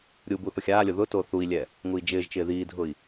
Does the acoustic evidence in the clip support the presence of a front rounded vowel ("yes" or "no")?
no